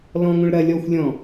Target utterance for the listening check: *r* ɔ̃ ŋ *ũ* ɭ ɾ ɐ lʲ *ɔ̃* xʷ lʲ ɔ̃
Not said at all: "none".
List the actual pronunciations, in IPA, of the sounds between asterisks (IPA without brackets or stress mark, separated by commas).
l, ũ, ɔ